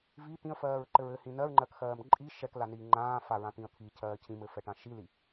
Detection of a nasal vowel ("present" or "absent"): present